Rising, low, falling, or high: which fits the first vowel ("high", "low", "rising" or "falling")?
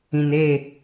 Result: low